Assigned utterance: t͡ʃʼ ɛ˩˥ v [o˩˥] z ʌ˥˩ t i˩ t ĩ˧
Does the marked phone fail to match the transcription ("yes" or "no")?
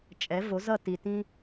no